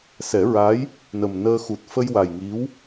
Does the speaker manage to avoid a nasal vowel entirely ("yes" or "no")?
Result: yes